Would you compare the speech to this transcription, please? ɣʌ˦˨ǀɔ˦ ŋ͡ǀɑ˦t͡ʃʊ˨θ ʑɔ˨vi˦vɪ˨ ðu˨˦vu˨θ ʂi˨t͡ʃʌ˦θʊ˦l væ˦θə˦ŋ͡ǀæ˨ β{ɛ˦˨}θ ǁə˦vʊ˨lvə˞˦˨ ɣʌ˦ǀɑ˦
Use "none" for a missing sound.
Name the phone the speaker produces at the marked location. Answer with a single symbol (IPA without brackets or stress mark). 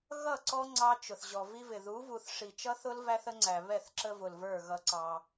ɛ˦˨